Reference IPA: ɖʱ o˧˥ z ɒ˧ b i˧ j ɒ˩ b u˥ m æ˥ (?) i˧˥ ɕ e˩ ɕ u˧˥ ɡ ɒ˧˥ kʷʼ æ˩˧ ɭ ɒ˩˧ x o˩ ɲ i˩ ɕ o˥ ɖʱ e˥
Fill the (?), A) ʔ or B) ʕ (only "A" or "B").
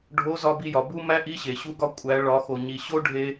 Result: A